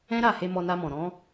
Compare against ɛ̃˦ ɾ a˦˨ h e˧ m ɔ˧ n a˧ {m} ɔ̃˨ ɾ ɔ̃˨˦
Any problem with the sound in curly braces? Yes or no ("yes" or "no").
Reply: no